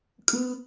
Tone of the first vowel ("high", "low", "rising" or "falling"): high